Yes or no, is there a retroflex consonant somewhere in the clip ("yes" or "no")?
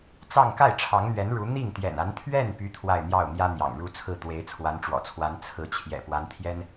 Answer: yes